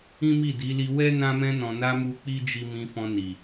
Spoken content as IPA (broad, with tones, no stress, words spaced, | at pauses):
ĩ˦mi˦˨di˨˦ li˧wɛ˦ nã˧mɛ̃˧nɔ̃˨na˧ mu˧k͡pi˦d͡ʒi˧ mĩ˧fɔ̃˧ ni˨